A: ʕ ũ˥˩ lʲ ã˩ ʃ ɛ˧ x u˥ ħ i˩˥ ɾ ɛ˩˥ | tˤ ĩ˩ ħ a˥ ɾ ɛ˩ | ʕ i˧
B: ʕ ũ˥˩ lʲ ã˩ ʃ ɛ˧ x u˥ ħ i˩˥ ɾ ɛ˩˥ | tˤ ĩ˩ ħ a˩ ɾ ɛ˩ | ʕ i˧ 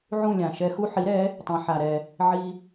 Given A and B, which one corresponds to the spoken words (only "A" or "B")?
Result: B